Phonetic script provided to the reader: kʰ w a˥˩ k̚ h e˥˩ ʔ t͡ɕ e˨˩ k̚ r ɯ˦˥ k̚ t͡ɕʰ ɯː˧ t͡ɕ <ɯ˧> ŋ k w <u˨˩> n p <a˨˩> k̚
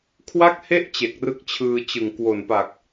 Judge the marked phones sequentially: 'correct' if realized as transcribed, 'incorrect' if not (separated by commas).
incorrect, incorrect, correct